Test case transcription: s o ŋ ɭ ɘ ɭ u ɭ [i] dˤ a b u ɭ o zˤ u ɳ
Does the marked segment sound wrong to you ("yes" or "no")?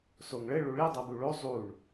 no